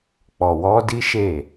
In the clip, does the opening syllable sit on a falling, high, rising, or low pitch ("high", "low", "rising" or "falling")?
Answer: low